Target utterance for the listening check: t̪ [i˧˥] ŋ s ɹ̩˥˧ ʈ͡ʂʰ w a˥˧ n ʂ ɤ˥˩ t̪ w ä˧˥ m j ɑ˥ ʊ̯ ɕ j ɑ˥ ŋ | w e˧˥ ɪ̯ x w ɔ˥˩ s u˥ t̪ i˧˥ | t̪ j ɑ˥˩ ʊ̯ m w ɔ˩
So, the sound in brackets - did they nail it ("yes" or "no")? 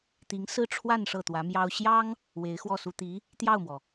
yes